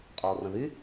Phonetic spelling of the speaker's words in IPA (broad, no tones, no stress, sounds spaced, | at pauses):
qʼ ɔː r ə̃ ð y